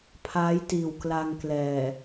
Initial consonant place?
labial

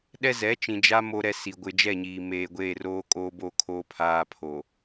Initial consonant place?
alveolar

